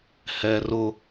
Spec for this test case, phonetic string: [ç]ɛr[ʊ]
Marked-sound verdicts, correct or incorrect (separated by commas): incorrect, correct